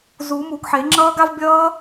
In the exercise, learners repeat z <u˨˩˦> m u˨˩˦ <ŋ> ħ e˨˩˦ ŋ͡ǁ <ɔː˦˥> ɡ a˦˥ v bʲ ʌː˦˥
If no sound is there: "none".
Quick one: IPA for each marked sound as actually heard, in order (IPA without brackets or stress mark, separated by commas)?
u˨˩˦, ɡ, ʌː˦˥